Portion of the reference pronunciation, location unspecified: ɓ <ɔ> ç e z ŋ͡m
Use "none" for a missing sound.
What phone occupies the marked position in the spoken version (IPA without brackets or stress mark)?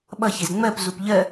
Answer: ʌ